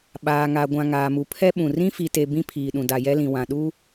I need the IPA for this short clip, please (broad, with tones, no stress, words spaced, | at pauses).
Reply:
ɓaː˨ŋa˨ ɡʷã˨ŋaː˨ mu˨pʰɛ˦ɓũ˨ rĩ˦fi˨te˨ bĩ˦pʰiː˨ɗũ˨ da˨jɛ˦lĩ˨ wã˨ɗu˦